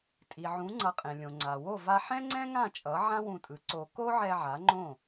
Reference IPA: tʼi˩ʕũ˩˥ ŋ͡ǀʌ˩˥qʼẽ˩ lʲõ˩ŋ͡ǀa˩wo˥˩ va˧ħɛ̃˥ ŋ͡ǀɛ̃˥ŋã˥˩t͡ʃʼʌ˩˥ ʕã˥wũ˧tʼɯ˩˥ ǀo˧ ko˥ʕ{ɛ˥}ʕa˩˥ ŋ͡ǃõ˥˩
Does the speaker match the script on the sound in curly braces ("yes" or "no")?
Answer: no